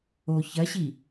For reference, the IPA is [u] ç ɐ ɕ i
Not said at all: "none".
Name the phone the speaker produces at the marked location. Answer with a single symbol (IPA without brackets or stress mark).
o